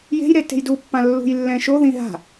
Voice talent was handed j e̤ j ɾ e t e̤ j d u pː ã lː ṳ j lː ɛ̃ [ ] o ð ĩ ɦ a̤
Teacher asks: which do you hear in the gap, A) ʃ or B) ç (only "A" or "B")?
A